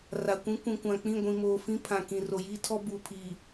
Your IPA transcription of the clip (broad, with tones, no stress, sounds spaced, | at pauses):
r a˨ kʷ ĩ˦ kʷ ĩ˨ kʷ ã˨ k͡p ĩ˦˨ ɡʷ ĩ˨ m oː˨ f ĩ˦ pʰ ã˨ k ĩ˨ r o˨ j iː˦ tʰ ɔ˦ b uː˨ pʰ iː˨